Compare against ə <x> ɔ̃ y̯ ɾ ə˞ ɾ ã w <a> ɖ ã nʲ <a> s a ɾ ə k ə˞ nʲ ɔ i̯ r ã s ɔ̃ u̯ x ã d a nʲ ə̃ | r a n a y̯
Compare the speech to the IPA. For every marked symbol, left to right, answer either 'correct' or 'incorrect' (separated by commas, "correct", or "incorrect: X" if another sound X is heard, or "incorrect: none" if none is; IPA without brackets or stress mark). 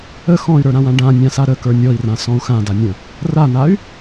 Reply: correct, incorrect: ã, incorrect: ã